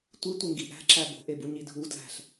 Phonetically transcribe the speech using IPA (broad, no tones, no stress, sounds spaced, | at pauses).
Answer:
tʷ i tʷ e ŋ ɡ i ʔ æ̤ ǁ æ b o̤ ʔ e b u ɲ i dʱ u d l æ̤ ɬ